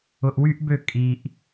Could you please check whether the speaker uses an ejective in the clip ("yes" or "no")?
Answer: yes